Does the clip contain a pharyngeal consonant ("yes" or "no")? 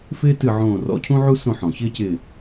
yes